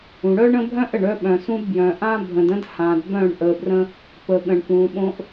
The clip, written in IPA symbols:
ũ˨ ɽœ˦ɳə̃˦bʱœ̃˦ʔ ə˨ɳœ˦ ɓœ̃˨sũ˦dbjœ̃˨ ʔã˦bʱə̃˨də̃˦d hã˨dbœ̃˦˨ɳʔə˨brə̃˦ | pə˨ɠə̃˨ɳpũ˨ɓõ˦ʔ

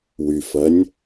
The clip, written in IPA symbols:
wyfɐnʲ

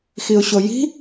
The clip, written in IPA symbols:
xiʊ̯ɕoji̤

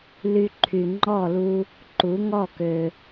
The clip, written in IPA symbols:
ly˧ǃʰy˩ ŋ͡ǃɔ˥˩lu˧ | ǃu˩˥ŋɔ˥˩kø˩

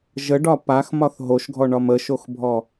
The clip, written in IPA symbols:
ʒəɖɒ paxmɒθ ɦoʃɡʱɔɳɒm əʃoxbʱɔ

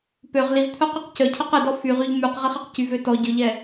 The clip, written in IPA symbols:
pøʁ liv t̪ʰœqɛqcœcʰɛq ɛdɔ fyʁyʎ myq ʁiχɛqcyvø tɔ ɟøʎɛ

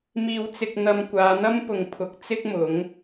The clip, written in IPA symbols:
miː˧wt͡sɪ˧k̚ n̪ɐ˧mkʷaː˨˧n̪ɐ˥mpʊ˨ŋ pʰʊ˨˥k̚t͡sɪ˥k̚ mʊ˨˥ŋ

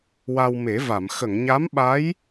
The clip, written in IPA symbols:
wa˧wme˨˩˦va˨˩˨m xə˨˩˨ŋɲa˧˥mɓa˧˥j

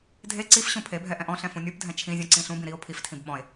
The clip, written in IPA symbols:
dʱe ǀif ɕũpʰebʱɛ ʔɛ̃ʔɔ̃ɬɛ̃ fũnʲupdʱɛ̃ t͡ʃʰĩzʲũ ǀĩːɬũbĩ ɾio̯ pʰiftʰĩb ɓɔ̃e̯

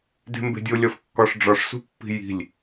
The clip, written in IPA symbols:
de̤mbe̤dʲo lʲɒfkːɒʂ ɖ͡ʐɒʂsṳpːi̤ ji̤lʲ

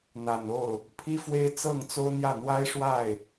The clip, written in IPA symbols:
n̪a˨˩no˥˩ʊ̯ | pʰi˥fwe˥ɪ̯ t͡sɤ˥˩ŋ t͡so˥ʊ̯n̪jä˥˩ n̪wa˥ɪ̯ʂwa˥˩ɪ̯

